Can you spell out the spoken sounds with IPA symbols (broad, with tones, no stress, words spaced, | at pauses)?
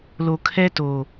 lo˨kʰɛ˦to˨